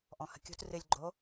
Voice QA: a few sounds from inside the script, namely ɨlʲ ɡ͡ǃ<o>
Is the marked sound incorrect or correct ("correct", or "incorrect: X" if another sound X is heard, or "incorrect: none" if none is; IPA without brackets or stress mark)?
correct